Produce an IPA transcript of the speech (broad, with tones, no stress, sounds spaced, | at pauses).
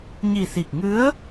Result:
ɲ i˨˩ s i˨˩ k̚ ŋ ɨ˧˥ ə̯